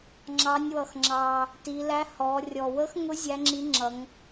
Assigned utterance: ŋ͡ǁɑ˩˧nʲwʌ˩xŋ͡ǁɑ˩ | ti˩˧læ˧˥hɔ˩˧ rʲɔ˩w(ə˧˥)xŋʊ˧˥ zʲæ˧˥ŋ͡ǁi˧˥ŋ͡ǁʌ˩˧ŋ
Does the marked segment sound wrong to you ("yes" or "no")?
no